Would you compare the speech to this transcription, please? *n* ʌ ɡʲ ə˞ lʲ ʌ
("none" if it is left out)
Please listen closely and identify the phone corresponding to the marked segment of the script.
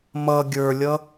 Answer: m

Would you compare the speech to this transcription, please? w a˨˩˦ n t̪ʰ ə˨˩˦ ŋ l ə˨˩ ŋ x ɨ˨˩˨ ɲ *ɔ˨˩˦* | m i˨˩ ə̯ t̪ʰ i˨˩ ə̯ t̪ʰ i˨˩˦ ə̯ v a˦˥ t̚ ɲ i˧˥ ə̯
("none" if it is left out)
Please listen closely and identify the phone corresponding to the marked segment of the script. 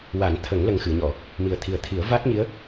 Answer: ɔ˨˩˨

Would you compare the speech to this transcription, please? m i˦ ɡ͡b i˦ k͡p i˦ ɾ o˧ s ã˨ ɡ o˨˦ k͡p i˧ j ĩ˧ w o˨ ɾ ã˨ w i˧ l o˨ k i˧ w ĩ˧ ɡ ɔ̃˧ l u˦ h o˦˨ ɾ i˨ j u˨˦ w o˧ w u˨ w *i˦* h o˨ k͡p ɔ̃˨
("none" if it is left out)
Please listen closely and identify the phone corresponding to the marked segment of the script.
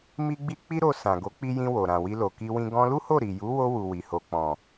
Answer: i˨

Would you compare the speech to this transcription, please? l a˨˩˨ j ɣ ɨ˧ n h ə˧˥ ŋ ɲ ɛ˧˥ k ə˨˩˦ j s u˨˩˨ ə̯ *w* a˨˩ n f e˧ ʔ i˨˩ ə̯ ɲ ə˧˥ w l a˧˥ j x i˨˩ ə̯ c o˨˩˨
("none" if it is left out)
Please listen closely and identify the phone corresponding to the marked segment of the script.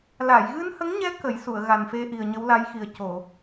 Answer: ɣ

